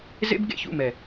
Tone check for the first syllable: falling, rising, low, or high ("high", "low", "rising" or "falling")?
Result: high